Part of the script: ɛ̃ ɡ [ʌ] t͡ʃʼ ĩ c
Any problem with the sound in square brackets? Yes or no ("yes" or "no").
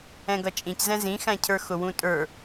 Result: no